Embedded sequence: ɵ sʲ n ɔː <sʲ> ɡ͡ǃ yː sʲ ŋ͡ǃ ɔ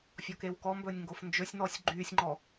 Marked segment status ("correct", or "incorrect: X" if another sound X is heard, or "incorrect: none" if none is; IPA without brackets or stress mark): correct